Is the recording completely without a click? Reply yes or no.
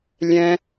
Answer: yes